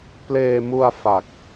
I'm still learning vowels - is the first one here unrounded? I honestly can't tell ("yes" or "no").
yes